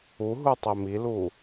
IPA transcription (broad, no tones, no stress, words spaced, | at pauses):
uɦu tˤemilu